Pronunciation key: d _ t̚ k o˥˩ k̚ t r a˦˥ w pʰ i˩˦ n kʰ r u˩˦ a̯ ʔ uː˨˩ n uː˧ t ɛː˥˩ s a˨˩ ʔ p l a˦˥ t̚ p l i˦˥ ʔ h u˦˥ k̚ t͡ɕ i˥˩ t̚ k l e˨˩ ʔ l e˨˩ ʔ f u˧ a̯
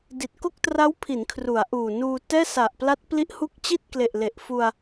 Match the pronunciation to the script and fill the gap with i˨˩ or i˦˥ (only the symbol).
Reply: i˨˩